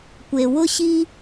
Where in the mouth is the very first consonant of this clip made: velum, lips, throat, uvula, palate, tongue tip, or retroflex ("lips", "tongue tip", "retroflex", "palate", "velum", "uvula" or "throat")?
velum